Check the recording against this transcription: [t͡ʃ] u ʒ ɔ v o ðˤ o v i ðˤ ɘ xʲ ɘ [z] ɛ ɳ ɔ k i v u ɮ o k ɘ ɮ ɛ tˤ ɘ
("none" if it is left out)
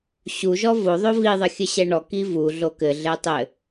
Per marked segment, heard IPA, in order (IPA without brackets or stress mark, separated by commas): ɕ, ɕ